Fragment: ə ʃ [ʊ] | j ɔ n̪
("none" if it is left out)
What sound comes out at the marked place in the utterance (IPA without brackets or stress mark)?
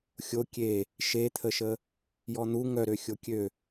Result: ə